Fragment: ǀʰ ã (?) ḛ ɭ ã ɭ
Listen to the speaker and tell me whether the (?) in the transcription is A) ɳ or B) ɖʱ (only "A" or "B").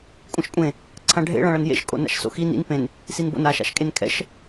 B